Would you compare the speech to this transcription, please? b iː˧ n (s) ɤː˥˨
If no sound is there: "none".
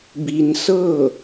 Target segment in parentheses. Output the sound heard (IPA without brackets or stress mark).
s